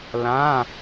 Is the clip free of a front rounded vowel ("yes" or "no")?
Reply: yes